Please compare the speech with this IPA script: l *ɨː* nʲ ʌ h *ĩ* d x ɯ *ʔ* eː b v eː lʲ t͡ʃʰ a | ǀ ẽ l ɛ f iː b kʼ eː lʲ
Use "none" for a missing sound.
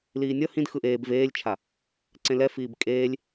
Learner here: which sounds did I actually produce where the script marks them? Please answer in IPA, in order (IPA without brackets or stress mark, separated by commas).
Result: iː, ĩ, ʔ